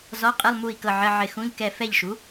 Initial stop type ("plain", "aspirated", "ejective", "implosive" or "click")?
ejective